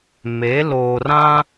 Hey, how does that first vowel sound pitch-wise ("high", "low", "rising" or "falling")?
rising